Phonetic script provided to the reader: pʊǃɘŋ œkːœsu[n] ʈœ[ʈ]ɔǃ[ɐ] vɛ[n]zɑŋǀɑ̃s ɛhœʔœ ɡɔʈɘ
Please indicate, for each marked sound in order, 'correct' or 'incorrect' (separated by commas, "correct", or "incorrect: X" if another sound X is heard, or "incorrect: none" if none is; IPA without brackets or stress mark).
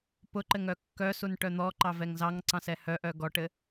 correct, incorrect: n̪, incorrect: ɑ, incorrect: ŋ